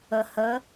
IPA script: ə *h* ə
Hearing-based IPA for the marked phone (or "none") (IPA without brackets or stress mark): h